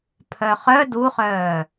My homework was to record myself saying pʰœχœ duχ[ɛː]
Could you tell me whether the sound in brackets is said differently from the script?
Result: yes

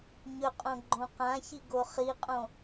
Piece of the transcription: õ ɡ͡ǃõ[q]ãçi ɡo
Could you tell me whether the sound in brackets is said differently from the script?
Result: no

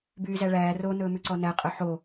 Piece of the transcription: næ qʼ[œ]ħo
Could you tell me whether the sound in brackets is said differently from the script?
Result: no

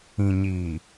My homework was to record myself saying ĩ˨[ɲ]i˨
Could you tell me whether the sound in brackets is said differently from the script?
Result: no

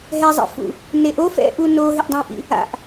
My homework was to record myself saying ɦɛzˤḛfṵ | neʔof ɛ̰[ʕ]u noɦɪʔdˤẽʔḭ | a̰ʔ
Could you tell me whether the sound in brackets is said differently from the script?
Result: yes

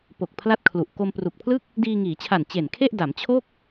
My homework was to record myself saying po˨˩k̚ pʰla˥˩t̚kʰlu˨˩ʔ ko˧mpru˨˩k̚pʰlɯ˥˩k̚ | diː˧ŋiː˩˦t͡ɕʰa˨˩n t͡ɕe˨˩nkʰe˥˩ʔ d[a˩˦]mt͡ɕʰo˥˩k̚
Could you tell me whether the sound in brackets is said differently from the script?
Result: no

